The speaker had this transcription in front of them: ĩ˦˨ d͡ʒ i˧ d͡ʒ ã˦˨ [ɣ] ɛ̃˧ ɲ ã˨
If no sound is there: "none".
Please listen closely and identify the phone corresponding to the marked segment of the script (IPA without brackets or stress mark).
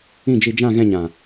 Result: ɣ